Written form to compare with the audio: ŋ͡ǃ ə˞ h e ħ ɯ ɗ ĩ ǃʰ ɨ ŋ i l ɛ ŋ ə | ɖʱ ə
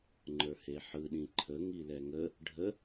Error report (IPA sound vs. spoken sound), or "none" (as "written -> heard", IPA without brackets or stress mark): ɨ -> ə